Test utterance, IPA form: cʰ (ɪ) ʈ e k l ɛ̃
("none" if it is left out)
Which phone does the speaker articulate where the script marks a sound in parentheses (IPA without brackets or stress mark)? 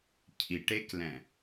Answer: i